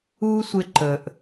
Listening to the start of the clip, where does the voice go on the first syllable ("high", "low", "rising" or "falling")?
high